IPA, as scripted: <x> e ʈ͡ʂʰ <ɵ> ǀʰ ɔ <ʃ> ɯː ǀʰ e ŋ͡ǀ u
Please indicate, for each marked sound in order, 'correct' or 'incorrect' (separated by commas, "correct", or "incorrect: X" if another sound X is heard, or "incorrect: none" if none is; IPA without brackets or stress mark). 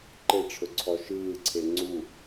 incorrect: ǃ, correct, correct